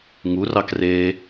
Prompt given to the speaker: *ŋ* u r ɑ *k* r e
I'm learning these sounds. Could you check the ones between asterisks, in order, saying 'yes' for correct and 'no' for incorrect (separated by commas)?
yes, yes